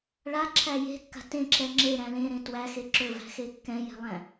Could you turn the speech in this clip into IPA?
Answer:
ɭ a ǁʰ æ j e̤ kː a̤ t ẽ ǁ ɛ ŋ͡ǁ e ɾ æ̃ l ẽ ɾ ẽ t w æ x e ǁ ɵ v æ̤ x e kː ɛ̃ j ɛ̤ lˠ æ̃

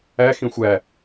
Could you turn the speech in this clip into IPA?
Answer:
æ x ĩ xʷ æ

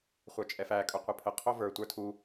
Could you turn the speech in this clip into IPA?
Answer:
χʷ ə˞ t͡ʃʼ ɛ f æ kʼ ɵ qʷ ɘ pʰ ə qʰ o v ə˞ tʷ ə˞ tʰ u

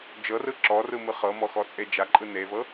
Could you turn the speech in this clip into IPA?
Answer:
d͡ʒ ɤ r ɯ ǁ ɔ r ɯ m ɯ χ ɤ m ɔ x ɔ t͡sʼ e d͡ʒ a ǃʼ ɯ n e v ɤ

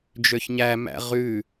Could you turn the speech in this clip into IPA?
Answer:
d͡ʒ ø ç ɲ æ m æ̰ ʁ ʉ

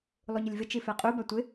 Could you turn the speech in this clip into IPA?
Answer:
lˠ u ɲ ɪ lʲ v ɪ t͡ʃ i f ɛ qʼ u b a tʷ ɪ

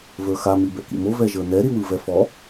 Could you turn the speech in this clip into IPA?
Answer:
v ə˞ x a m i b ɛ̰ k ḭ m o v ɛ ʒ ə˞ n ɛ ɾ i w ɯ v ɛ f ɔ

